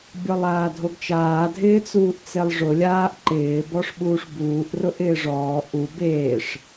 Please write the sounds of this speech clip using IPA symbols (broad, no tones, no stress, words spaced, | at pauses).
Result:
bʲɔlˠaːdʱoɡt͡ʃaː dʱɪːt͡suːʔt͡selˠʐʊ lʲaːʔ ǃɪː bɔʂɓuːʂbuːʔ rʊʔɪːʐɔː ʔu beːʂ